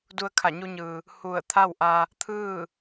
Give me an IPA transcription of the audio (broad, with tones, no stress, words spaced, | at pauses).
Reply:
du˧ə̯kʰa˧˩ɲu˧ɲɯː˩ | hu˧˩ə̯ t̪ʰa˥˨wʔa˧ | t̪ʰɯː˥˨